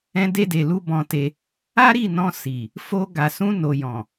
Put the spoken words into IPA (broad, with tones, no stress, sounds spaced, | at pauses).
ɛ̃˧ d e˧ d e˨ l u˧ b ɔ̃˧ t e˧ | a˦ ɾ i˦˨ n ɔ̃˧ s i˨ | f o˧ ɡ a˨ s ũ˧ n o˨ j ɔ̃˨